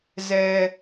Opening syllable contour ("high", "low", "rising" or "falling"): low